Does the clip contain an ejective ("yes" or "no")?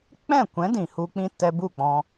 no